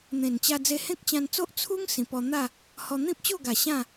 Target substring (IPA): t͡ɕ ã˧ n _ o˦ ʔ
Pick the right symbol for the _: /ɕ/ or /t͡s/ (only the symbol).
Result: t͡s